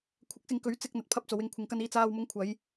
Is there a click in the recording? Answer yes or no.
no